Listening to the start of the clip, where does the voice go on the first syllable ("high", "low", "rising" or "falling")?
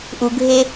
low